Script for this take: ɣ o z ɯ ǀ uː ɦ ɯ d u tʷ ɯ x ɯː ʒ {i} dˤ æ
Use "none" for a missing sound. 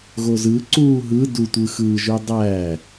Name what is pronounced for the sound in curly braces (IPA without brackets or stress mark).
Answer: y